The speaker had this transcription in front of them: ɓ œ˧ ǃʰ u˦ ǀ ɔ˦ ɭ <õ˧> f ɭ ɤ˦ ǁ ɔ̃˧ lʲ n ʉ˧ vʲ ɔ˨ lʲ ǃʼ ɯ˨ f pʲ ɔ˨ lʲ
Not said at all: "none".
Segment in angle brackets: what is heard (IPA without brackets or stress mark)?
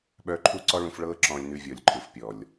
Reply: ũ˧